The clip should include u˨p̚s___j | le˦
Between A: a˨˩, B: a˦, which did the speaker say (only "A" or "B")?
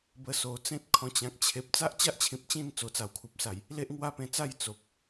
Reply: A